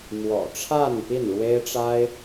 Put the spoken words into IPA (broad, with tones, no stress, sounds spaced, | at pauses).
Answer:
m w ɔ̰˨˩ ʈ͡ʂʰ a˥˧ n p i˥˩ n ɻ w e˥ ɪ̯ ʈ͡ʂ a˥ ɪ̯